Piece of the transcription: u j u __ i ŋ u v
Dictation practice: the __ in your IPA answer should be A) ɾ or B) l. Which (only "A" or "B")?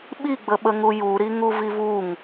A